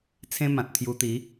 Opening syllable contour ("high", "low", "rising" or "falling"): high